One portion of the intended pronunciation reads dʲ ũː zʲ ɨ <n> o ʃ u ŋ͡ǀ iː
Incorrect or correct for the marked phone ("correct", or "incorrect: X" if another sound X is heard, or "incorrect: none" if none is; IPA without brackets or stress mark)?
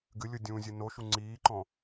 correct